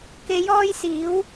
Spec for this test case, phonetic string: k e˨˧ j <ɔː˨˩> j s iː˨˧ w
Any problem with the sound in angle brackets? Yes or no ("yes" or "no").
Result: yes